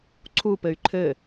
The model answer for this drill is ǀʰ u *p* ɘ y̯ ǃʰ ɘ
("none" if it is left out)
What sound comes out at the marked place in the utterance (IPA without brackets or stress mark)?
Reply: p